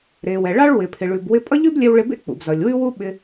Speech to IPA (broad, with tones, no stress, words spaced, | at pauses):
ɾe˩wɛ˩ ɭɑ˥ɭwɪ˩ pʰɪ˩ɭʉ˩b wɪ˧pʼʌ˥ʎʉ˥blʲɛ˧w ɭɪ˧bḛ˥ k͡pṵ˩bzʌ˩lʲwʉ˥wu˥ ɓɪ˧